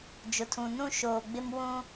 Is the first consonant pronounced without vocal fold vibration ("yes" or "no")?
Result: no